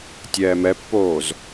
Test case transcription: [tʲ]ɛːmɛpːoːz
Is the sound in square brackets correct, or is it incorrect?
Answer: correct